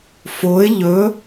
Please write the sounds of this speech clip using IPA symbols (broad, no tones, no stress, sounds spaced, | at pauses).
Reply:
f o ɪ̯ ʎ ɵ